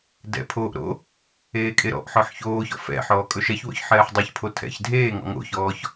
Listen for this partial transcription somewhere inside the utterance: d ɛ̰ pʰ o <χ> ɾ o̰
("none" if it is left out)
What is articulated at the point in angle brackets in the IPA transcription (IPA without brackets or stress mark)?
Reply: ʔ